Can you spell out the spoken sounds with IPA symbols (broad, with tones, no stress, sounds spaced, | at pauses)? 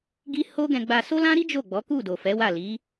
ɡ i˦ h o˦ ɡ ɛ̃˧ ɡ͡b a˧ s o˦ l ã˦ ɾ i˦ d͡ʒ o˦˨ ɡ͡b ɔ˨˦ k u˦˨ d o˨ f ɛ˨˦ w a˦˨ l i˨˦